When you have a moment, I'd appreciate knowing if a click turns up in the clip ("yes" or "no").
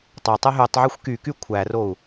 no